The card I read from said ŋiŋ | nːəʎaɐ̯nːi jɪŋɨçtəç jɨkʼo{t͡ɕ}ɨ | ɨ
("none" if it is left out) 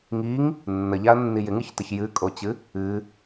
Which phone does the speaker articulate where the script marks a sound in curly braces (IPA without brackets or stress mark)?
t͡ɕ